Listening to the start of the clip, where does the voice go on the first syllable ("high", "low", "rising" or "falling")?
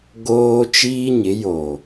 high